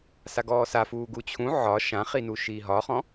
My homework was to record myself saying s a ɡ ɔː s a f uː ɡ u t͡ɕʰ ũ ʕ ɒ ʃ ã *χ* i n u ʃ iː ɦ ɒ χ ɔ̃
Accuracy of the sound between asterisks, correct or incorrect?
correct